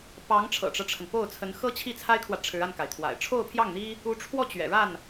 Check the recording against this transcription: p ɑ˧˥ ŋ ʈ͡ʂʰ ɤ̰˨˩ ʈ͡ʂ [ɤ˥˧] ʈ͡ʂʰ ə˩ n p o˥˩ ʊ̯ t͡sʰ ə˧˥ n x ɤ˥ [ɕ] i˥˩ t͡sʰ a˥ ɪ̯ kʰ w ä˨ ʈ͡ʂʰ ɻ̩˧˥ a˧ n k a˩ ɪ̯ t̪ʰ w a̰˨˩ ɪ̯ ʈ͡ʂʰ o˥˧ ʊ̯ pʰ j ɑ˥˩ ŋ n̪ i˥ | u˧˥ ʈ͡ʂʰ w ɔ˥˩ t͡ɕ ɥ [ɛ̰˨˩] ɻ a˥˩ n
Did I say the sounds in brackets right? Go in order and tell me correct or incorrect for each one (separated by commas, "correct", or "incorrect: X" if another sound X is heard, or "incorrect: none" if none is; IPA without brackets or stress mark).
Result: incorrect: ɤ˦, incorrect: t͡ɕʰ, correct